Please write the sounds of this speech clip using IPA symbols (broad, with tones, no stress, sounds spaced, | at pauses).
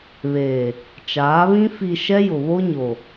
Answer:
β eː˨ | t͡ʃ aː˨˦ β ĩ˦ f i˨ ʃ ɛ˦ j ʊ˨ β o˦ ɲ o˨